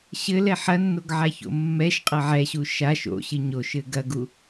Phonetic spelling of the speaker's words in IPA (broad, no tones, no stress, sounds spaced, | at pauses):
ɕ ɘ l ɛ ħ ɐ nː o ɡ ʕ a ç o̰ mː ɛ ʃ qʼ ɐ ʕ ɛ ɕ u ʃ a ʃ o̰ ɕ ɨ ɲ o ʃ ɘ ɡ ɐ ɡ u